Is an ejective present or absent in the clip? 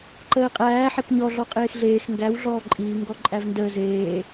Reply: present